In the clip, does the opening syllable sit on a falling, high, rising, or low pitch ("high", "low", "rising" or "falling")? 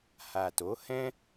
low